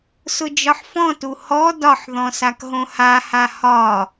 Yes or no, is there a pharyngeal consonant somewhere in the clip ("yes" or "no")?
yes